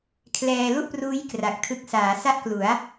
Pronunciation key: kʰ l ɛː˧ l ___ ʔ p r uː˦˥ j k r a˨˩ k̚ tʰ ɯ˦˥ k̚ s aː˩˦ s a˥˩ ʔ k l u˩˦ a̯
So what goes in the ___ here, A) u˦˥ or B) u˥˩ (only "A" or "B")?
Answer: B